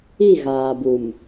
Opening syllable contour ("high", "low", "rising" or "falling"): falling